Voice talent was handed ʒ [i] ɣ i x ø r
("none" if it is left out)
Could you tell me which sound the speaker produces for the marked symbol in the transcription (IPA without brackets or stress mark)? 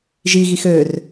i